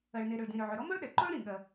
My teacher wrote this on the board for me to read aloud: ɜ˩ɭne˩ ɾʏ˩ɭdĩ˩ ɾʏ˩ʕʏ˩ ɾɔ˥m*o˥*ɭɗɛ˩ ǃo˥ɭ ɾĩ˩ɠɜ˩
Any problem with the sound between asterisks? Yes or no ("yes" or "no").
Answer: no